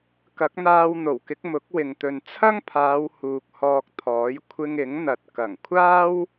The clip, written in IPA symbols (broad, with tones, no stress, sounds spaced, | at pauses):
k ɐ˨˥ k̚ n̪ aː˧ w n̪ o˨˩ w k ɪ˨˥ k̚ m ʊ˨˥ k̚ w ɪ˨ ŋ t̪ ɵ˨ n t͡sʰ ɐ˥ ŋ pʰ aː˨˧ w h uː˨ k̚ h ɔː˧ k̚ t̪ʰ ɔː˨˥ j kʷʰ ɪ˧ ŋ ɪ˨˥ ŋ n̪ ɐ˨ t̚ k ɐ˨˩ ŋ kʷʰ aː˥ w